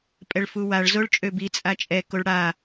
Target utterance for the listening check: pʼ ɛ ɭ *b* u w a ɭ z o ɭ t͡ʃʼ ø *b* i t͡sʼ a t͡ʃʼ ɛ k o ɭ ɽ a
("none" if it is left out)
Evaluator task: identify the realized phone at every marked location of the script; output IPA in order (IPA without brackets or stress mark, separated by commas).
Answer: f, b